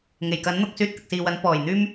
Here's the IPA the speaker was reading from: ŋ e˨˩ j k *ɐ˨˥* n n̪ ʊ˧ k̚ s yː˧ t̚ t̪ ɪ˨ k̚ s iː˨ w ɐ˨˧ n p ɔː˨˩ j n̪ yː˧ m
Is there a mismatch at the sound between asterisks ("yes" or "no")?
no